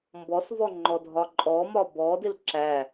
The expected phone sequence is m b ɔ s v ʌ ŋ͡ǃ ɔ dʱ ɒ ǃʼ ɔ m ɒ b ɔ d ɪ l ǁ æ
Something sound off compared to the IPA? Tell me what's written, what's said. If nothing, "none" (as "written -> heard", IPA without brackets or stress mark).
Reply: ʌ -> ɔ